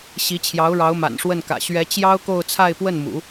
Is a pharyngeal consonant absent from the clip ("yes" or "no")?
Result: yes